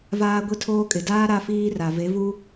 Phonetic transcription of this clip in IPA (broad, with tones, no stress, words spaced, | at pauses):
vaː˦ɡʷi˦tʰoː˦kʼɪ˨ daː˦ ɾa˦fiː˦ra˨ ve˨˦vu˦